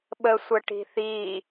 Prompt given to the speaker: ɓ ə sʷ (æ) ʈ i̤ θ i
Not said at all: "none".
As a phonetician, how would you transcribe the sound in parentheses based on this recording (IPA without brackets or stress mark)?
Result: ə